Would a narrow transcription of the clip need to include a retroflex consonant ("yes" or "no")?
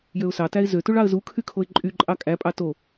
yes